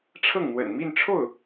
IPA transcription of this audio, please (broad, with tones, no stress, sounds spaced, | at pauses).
ʈ͡ʂʰ ɤ˥˩ ŋ n̪ w ə̰˨˩ n m i˥˧ n ʈ͡ʂʰ o˥˩ ʊ̯